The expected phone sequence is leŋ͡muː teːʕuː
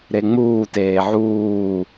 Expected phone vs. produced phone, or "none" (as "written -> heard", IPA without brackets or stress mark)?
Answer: l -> ɾ